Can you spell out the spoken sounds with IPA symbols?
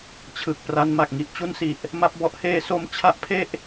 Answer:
t͡ɕʰ ɯ˨˩ k̚ p r a˧ n m a˨˩ k̚ ŋ i˦˥ ʔ t͡ɕ u˦˥ n s i˨˩ ʔ | m a˦˥ p̚ b ɔ˦˥ ʔ h eː˦˥ s o˧ m t͡ɕʰ a˥˩ ʔ pʰ e˥˩ ʔ

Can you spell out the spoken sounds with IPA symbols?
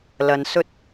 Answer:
l ɐ˧ n s ɵ˥ t̚

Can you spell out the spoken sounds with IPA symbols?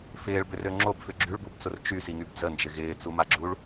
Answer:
f ɪː ɭ b ʏ r ø ŋ͡ǁ o b f ʏ ɡ͡ǁ y ɭ b u b t͡s ʊ r t͡ʃ y s i ŋ y b d͡z ə n d͡ʒ ɪ ɣ ɪː t͡s u m a ɡ͡ǁ u ɭ

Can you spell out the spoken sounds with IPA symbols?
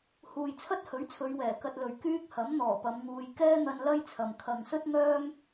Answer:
h uː˨ j t͡sʰ ɐ˥ t̚ h ɵ˨˥ ɥ t͡sʰ ɵ˨˧ ɥ w ɛː˨˩ k ɐ˧ t̚ l ɵ˨ ɥ k yː˥ k̚ h ɐ˨˥ m n̪ ɔː˨˩ p ɐ˨˧ m ŋ uː˧ j k ɛː˥ n̪ ɐ˧ n l ɐ˥ j t͡sʰ ɐ˨ m kʰ ɐ˨ ŋ s ɵ˥ t̚ ŋ œː˥ m

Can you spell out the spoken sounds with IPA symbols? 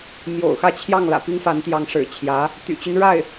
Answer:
m j o̰˨˩ ʊ̯ x ä˥˧ t͡ɕʰ j ɑ˥˩ ŋ l ä̰˨˩ p i˥ ŋ f a˧˥ n t̪ j ɑ˧˥ ŋ ʂ ɻ̩˨˩ t͡ɕʰ j ä˧˥ | t̪ y̰˨˩ t͡ɕ y˦ n ɻ a˥˩ ɪ̯

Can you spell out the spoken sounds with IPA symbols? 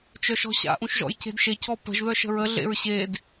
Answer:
t͡ʃ œ ʃ ɔ̤ ɕ a̰ ʔ ũ ʃ ʒ ɔ̰ j c e̤ d ʃ e c ɔ p ə̤ ʒ ð œ ʃ ə̤ ɹ ə ɮ ḛ ɹ ɕ e d

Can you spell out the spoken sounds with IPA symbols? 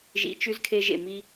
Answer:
ʒ ḭ˧ t͡ʃ ʉ˦ z kʰ e˧ ʒ ḛ˨ m i˧

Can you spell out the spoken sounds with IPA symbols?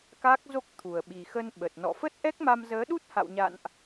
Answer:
k a˦˥ k̚ z o˦˥ k̚ t̪ʰ u˨˩ ə̯ ɓ i˨˩ x ə˧ n ɓ ə˨˩ t̚ n ɔ̰˧˨ f ə˦˥ t̚ ʔ ɛ˦˥ k̚ m a˧ m z əː˨˦ ɗ u˦˥ t̚ h a̰˧˨ w ɲ a̰˧˨ n ʔ

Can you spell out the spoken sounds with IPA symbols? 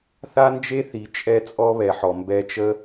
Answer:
θ a˦ n d͡ʒ e˦ θ i˨ t͡ʃʼ ɛ˦ t͡sʼ ɔ˦ β ɛ˨ ħ ɔ˨ m b ɛ˧ t͡ʃ ə˦

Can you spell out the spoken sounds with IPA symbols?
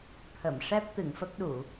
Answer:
t̪ʰ ə˨˩˨ m ʂ ɛ˦˥ p̚ t̪ ɨ˨˩˨ ŋ f ə˦˥ k̚ ɗ u˨˩˨

